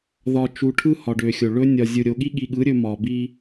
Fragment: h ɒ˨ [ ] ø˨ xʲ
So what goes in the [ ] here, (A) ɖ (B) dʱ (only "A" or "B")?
A